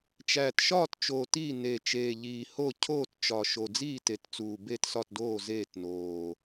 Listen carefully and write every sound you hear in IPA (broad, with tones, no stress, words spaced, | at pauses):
t͡ʃæ˨˩tʃɒː˥˨tt͡ʃoː˨˩t i˥˨ ne˨˩ t͡ʃeː˨˩ʎiː˨˩ho˥˨ cʰoː˥˨tt͡ʃɒ˨˩ʃo˨˩ d͡ziː˥˨te˨˩tt͡suː˨˩ be˥˨tsɒ˥˨tdoː˥˨ zeː˥˨tnoː˨˩